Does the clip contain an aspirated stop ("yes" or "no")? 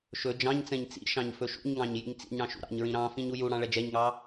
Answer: no